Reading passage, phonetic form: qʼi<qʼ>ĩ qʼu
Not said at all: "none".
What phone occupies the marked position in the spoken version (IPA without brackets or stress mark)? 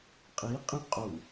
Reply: qʼ